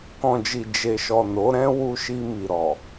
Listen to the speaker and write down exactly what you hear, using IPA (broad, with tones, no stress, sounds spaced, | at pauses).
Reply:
k ɔ̃˨ d͡ʒ i˨ d͡ʒ e˨ ʃ ɔ˨ n o˨˦ ɾ ɛ̃˦ w u˧ ʃ i˧ m i˨ ɾ ɔ˨